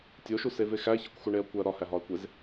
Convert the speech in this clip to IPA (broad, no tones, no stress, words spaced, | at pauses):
tʲoʃuseve xæçekʷxuɳeɐ̯ kʷæɐ̯ɾɒhæ ɦɒɐ̯kʷez